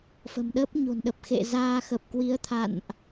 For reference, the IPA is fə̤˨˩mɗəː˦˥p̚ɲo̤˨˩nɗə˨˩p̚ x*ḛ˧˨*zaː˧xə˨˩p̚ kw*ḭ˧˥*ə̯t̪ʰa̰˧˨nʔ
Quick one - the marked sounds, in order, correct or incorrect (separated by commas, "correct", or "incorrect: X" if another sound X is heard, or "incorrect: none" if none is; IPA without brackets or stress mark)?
correct, incorrect: i˨˦